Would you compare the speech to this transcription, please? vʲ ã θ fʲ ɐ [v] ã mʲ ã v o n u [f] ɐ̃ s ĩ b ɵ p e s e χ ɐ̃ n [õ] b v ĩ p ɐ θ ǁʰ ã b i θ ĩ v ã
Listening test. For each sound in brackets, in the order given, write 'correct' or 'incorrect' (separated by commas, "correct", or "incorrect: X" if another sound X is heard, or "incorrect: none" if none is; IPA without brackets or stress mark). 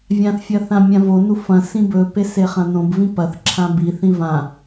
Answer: incorrect: θ, correct, correct